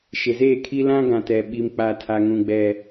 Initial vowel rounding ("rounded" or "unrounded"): unrounded